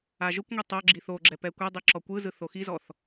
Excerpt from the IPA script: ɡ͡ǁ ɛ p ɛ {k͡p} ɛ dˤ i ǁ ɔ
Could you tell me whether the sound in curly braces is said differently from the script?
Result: yes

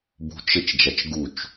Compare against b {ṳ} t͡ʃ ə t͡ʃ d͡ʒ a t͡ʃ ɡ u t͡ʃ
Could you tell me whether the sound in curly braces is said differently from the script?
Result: no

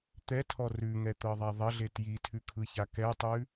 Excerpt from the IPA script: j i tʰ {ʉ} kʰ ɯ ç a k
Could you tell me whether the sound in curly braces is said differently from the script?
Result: no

